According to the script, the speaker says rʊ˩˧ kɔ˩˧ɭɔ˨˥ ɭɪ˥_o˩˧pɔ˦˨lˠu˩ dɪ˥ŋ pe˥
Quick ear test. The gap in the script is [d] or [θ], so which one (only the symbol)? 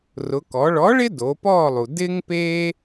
d